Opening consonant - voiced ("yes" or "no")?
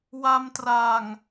yes